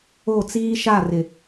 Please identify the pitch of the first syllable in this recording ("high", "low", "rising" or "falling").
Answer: falling